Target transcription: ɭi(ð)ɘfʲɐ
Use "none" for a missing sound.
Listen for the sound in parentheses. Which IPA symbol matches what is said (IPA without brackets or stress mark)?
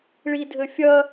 dʱ